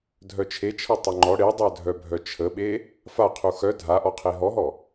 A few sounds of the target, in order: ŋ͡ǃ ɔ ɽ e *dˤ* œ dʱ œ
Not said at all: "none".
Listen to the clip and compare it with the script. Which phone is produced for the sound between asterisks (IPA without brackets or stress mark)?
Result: dˤ